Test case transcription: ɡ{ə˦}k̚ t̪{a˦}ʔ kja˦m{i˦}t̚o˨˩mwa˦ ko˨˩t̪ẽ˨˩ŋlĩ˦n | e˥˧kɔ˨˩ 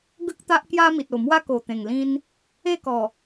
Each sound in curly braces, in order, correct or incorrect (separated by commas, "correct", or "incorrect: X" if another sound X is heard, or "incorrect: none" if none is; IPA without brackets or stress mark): correct, correct, incorrect: i˨